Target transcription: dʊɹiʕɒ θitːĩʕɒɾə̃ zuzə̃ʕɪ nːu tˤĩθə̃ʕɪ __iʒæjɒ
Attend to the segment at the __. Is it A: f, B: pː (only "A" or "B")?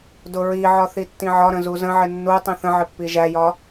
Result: B